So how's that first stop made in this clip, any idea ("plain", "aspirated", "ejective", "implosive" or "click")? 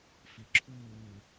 click